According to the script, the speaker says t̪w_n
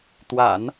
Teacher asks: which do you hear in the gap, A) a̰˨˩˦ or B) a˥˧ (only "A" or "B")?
A